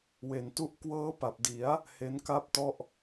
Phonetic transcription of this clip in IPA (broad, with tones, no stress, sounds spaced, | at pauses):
w e˩˦ n t u˥˩ ʔ k w ɤː˦˥ p a˨˩ p̚ d i˩˦ a̯ | h e˦˥ n k a˥˩ p̚ t ɔ˥˩ ʔ